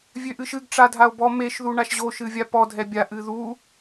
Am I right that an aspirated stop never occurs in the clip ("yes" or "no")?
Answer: yes